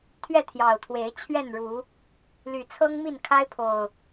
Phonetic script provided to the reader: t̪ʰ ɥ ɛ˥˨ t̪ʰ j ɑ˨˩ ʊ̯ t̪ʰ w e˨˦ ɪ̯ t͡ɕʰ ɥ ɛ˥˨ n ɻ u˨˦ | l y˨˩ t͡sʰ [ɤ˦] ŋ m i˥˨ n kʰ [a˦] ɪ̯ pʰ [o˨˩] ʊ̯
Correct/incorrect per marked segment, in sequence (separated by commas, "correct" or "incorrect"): correct, correct, correct